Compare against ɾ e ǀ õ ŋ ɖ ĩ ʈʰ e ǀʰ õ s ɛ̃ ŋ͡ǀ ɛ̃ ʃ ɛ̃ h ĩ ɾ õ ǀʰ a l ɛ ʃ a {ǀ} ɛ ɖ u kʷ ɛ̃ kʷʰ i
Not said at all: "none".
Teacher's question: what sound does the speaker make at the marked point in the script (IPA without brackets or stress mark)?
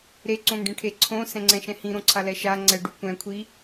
ŋ͡ǀ